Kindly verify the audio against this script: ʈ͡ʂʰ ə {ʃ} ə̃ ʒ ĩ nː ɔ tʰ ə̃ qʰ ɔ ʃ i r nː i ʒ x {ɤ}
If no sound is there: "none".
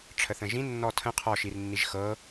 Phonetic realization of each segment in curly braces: θ, ɤ

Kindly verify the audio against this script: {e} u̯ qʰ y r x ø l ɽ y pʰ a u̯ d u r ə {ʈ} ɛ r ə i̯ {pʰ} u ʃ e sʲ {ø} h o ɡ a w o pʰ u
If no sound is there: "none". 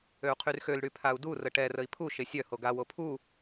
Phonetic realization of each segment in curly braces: ø, ʈ, pʰ, œ

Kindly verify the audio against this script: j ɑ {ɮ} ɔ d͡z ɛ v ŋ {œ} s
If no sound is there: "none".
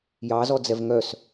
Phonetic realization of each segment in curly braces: z, œ

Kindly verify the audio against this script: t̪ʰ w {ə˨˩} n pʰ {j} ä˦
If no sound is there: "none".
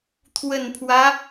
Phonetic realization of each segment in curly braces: ə˨˩, w

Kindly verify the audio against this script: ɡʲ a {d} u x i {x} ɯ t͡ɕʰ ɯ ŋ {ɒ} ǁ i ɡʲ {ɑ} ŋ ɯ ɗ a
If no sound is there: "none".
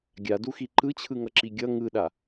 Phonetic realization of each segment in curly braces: d, ǃ, ʌ, ʌ

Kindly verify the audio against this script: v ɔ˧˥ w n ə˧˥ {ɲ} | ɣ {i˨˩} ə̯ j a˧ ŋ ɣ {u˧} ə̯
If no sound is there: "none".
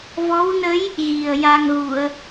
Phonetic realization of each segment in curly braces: j, i˨˩, u˨˩˨

